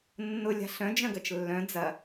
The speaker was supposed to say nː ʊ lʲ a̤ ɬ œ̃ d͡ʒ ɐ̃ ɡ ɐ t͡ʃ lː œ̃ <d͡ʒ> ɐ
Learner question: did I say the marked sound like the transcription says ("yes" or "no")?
no